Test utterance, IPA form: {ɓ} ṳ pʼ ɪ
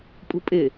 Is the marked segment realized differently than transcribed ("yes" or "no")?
yes